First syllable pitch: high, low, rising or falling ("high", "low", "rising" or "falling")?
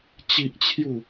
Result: high